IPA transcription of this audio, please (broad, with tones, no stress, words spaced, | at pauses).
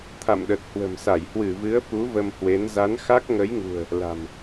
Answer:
t̪ʰa̰˧˨mɗə˨˩t̚hwə̤˨˩msa˧˩j hwɨ˧˩vɨ˨˦ə̯fu˨˦ və˧mhwe˨˦n za˨˦nxa˦˥k̚ ŋə˨˦jŋṳ˨˩ə̯ | la̤˨˩m